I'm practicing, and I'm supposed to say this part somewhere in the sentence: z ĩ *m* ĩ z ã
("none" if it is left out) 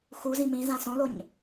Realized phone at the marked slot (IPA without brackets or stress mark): m